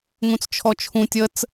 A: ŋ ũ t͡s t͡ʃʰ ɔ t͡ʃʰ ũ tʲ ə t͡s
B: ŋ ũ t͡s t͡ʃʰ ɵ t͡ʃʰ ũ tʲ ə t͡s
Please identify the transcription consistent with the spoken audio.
A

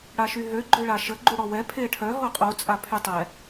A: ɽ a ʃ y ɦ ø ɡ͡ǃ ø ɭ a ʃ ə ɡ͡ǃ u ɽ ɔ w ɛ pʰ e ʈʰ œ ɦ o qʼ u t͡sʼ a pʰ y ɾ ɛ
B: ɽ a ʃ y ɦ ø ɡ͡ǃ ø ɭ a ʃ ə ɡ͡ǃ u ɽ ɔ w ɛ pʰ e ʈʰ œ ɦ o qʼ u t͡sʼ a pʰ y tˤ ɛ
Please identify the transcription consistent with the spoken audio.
B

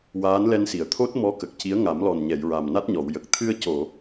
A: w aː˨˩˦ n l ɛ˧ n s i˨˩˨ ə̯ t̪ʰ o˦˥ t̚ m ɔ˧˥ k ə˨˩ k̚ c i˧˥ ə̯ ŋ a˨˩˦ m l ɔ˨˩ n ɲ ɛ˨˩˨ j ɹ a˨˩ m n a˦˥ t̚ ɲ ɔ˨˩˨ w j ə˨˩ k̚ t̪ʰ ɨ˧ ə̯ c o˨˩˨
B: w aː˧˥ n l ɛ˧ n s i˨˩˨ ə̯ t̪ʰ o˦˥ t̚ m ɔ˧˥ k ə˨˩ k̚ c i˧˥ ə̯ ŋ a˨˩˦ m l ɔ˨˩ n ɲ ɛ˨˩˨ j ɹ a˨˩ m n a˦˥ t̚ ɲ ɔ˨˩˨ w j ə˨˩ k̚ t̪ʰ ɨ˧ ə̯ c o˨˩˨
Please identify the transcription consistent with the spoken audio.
B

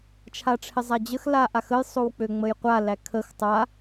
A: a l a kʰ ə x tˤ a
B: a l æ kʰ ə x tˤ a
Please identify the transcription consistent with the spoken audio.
B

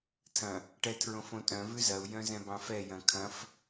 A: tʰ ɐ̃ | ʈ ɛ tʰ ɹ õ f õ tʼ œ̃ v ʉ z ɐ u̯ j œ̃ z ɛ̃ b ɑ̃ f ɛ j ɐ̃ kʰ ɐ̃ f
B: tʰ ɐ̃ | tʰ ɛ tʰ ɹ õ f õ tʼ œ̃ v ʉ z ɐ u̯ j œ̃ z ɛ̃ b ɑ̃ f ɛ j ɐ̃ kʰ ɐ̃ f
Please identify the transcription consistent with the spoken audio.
A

